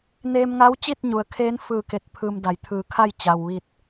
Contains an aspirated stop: yes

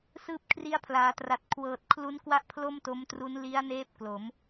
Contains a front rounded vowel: no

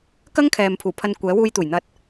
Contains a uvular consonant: no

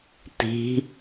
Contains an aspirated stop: no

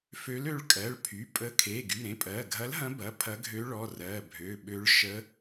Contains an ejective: yes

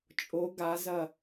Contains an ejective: yes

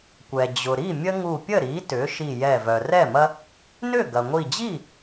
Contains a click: no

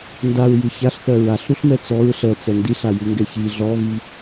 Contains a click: no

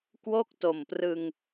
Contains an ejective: no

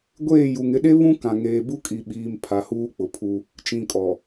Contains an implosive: yes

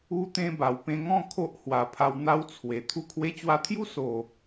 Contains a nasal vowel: yes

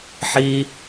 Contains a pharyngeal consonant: yes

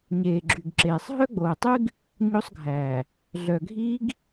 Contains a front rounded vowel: yes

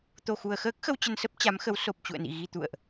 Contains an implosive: no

